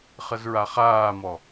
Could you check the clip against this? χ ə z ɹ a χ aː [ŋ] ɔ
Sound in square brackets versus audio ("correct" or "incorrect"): incorrect